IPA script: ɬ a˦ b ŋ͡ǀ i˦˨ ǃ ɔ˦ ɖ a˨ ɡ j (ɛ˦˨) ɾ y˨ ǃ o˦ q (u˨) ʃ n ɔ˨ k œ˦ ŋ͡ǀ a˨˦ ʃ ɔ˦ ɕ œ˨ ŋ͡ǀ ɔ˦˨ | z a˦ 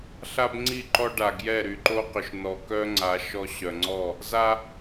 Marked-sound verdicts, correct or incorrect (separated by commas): correct, incorrect